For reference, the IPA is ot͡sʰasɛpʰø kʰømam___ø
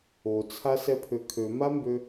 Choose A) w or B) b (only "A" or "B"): B